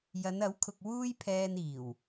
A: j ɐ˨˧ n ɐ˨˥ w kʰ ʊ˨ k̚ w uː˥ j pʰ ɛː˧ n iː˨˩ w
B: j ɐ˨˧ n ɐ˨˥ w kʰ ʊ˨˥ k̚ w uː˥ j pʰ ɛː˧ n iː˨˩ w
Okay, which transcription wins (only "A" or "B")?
A